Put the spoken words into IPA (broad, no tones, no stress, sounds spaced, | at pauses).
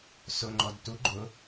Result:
s ʊ ŋ͡ǃ ɔ d t u ɡ͡ǃ ʊ